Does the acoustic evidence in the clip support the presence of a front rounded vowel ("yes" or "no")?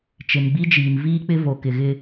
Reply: no